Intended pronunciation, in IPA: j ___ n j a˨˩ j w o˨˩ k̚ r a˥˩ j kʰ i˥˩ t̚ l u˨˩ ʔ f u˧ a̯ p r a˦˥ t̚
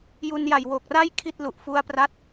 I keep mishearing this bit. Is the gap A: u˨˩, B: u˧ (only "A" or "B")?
B